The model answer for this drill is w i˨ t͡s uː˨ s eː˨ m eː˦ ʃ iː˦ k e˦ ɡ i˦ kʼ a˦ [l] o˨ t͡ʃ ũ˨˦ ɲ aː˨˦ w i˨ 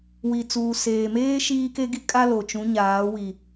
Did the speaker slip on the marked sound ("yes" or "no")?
no